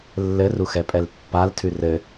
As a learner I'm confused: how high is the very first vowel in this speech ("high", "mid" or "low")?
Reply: mid